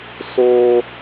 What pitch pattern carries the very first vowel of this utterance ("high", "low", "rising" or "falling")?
high